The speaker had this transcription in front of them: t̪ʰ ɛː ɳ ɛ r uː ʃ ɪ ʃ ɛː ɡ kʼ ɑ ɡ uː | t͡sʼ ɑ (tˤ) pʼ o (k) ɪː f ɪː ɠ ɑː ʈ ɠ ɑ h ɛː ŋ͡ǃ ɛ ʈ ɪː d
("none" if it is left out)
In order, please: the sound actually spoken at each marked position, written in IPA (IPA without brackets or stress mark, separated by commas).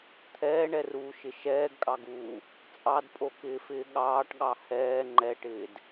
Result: d, k